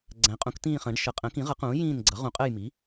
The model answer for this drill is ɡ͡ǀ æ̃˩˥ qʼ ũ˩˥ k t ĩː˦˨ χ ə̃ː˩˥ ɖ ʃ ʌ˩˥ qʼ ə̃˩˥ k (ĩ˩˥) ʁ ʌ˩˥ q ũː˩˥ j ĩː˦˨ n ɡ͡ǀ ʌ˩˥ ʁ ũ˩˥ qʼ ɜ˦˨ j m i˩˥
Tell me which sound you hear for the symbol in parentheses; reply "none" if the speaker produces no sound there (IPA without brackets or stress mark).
ĩ˩˥